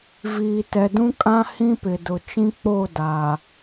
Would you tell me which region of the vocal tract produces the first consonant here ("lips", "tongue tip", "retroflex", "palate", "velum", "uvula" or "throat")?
lips